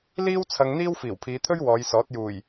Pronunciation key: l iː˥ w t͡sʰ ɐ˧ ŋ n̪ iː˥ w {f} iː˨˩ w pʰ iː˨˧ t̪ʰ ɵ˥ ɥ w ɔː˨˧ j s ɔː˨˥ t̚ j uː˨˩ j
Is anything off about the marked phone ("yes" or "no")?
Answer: no